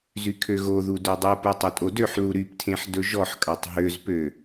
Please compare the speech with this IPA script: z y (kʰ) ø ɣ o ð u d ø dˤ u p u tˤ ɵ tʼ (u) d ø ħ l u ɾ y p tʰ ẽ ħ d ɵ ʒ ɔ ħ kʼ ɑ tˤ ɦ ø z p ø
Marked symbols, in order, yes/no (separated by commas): yes, no